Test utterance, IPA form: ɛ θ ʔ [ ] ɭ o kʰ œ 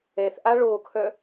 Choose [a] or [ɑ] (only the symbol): a